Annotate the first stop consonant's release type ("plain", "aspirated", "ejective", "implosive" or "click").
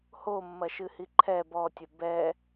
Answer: click